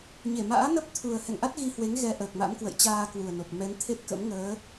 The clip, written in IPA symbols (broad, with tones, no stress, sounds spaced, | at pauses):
ɲ e˧˩ m a̰ː˧˥ n ə˦˥ p̚ t̪ʰ u˨˩ ə̯ h ɛ̰˧˨ ŋ ʔ a˦˥ t̚ ɣ i˧ h w e˨˦ ŋ ɣ ɛ˧ ʔ əː˨˩ k̚ m a̰˧˥ m k w ə̰˧˨ j t͡ɕ aː˧ k w u˨˩ ə̯ n o˨˩ p̚ m ɛ˨˦ n t̪ʰ e˦˥ t̚ k ə̰˧˥ m ŋ əː˨˦